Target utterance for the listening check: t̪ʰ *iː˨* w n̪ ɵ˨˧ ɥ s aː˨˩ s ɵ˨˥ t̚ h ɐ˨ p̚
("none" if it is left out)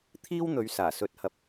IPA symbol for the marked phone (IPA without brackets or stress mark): iː˥